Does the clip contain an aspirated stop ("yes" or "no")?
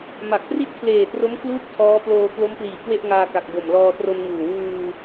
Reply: yes